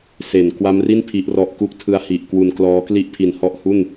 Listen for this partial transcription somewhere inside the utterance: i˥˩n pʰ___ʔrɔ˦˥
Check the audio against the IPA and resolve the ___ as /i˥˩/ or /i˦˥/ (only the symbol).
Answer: i˦˥